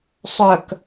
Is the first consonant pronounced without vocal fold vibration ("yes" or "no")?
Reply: yes